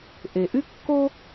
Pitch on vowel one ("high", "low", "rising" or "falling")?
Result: low